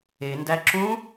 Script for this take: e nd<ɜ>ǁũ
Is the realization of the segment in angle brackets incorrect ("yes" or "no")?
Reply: yes